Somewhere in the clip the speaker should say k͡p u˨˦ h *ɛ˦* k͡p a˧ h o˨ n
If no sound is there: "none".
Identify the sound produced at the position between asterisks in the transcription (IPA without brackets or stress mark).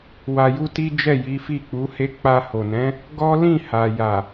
e˦